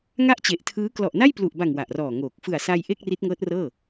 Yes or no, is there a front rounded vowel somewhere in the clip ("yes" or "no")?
no